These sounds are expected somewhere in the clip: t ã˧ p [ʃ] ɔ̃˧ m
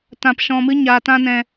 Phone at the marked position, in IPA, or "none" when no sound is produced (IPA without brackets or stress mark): ʃ